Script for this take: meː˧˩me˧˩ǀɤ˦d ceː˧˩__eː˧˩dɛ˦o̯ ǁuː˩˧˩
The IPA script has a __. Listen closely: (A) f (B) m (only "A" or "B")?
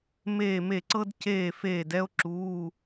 A